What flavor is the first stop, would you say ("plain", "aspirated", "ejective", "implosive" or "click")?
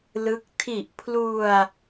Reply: plain